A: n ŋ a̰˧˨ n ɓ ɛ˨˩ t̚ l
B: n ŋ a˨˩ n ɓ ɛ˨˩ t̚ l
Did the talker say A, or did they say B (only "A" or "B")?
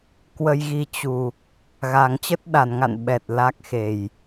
A